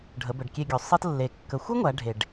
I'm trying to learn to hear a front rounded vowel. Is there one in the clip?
no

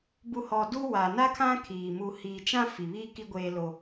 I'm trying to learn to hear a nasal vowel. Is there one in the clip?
yes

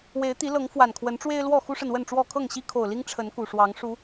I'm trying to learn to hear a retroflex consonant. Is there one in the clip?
yes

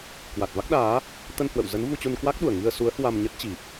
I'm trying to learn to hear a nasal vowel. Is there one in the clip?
no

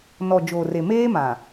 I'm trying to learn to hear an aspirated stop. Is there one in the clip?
no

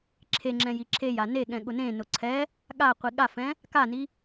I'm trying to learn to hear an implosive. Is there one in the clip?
yes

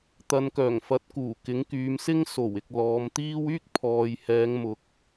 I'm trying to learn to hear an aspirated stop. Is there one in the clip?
yes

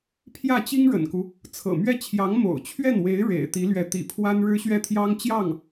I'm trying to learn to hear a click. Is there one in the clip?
no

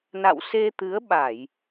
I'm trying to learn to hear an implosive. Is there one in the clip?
yes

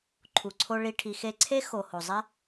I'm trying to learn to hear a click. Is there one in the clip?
yes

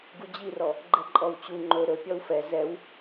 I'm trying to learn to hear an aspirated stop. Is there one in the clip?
no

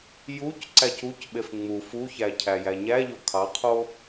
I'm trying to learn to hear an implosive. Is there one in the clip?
yes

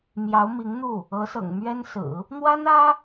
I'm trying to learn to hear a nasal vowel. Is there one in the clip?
no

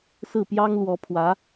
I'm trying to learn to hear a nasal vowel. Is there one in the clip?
no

